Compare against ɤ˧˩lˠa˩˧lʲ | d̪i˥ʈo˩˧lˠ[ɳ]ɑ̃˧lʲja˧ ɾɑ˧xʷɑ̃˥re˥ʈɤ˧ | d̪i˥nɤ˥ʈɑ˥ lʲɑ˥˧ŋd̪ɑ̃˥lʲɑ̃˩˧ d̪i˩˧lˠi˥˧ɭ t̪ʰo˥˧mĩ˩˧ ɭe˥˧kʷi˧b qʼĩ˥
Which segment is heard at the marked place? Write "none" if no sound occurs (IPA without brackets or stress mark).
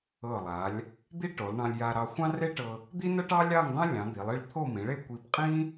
ɳ